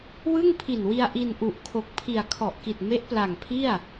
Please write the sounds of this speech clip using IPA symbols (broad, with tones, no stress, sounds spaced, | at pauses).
w ɯ˥˩ ŋ pʰ i˨˩ n w i˧ a̯ ʔ i˧ n ʔ u˨˩ ʔ kʰ o˨˩ k̚ pʰ i˨˩ a̯ kʰ ɔ˨˩ ʔ k i˨˩ t̚ m e˦˥ ʔ p l a˨˩ ŋ pʰ i˥˩ a̯